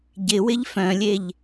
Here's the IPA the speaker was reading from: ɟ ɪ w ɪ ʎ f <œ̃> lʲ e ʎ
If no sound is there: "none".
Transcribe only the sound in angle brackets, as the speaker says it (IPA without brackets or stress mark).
œ̃